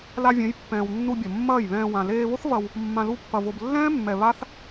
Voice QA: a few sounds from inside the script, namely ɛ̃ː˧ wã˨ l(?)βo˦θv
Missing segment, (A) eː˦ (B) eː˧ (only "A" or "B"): B